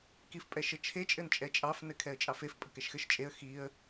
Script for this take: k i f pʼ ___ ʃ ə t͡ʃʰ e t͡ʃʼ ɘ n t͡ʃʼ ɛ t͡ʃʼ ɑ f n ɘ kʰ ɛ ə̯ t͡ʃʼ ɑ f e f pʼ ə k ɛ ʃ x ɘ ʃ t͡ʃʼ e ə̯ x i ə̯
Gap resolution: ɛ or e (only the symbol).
ɛ